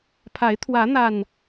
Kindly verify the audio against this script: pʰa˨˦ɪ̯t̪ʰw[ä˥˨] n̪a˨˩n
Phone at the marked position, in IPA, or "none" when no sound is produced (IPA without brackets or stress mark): ä˨˦